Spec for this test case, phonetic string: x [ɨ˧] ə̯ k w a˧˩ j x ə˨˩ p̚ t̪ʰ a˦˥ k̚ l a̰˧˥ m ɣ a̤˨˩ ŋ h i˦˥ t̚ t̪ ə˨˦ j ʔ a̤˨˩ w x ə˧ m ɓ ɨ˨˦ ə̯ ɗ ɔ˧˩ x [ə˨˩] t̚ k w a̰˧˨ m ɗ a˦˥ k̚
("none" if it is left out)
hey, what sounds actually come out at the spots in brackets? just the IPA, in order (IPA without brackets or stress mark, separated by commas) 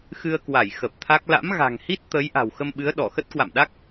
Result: ɨ˧, ə˦˥